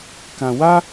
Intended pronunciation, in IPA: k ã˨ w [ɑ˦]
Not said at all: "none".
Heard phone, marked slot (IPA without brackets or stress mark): a˦